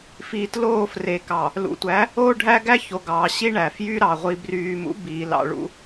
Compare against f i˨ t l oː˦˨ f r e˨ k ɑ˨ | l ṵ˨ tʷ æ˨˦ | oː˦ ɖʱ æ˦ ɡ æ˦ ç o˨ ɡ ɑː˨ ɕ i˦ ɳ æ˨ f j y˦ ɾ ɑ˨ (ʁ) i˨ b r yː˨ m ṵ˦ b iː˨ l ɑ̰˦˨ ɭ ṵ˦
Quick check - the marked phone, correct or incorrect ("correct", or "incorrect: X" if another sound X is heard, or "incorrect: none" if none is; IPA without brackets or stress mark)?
incorrect: ʁʷ